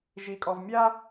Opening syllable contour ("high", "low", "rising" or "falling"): low